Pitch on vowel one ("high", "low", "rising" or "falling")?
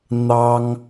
high